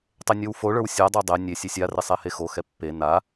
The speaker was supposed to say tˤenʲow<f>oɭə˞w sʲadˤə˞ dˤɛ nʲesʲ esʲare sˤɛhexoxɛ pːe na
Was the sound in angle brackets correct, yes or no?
yes